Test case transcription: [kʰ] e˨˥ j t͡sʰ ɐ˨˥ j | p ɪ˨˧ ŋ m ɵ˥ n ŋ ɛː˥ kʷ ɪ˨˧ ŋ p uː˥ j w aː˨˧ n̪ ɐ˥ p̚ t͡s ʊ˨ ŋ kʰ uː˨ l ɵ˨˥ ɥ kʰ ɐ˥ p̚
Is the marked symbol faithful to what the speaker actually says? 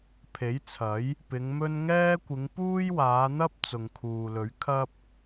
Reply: no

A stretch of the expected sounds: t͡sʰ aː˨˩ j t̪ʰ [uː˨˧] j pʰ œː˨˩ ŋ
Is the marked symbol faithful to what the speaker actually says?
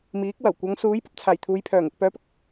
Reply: yes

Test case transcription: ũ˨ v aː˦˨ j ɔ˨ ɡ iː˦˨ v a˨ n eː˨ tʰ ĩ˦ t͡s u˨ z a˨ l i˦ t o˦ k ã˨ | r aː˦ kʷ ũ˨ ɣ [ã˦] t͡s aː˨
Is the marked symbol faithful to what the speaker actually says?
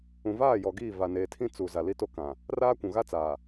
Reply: no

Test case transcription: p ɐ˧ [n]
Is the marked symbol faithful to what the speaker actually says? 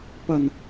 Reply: yes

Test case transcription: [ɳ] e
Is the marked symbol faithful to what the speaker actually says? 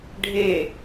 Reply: no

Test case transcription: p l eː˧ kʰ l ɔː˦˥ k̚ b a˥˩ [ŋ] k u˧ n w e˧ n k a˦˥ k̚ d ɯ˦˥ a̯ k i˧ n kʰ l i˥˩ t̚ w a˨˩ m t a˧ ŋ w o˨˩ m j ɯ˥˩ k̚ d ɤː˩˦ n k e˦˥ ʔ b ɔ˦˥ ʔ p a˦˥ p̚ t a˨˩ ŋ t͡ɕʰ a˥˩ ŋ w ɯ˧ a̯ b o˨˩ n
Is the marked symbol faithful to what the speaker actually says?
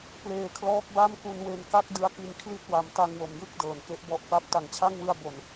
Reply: no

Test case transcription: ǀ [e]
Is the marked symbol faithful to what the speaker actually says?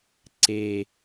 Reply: yes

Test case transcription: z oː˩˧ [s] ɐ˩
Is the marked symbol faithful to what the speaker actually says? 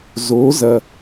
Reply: no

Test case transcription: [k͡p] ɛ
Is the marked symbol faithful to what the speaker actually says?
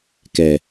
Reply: no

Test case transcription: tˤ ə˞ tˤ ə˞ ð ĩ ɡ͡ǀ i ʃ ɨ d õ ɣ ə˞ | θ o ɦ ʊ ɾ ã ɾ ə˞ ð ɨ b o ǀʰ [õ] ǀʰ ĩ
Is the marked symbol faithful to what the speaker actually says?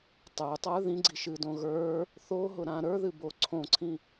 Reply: yes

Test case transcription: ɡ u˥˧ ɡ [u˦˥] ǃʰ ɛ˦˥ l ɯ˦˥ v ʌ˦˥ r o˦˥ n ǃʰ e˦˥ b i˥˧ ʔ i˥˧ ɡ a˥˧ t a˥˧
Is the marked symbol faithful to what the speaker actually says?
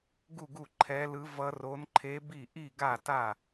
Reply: no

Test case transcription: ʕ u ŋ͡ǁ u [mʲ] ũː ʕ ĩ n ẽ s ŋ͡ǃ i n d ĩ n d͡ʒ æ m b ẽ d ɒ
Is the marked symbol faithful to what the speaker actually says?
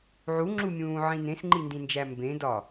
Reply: yes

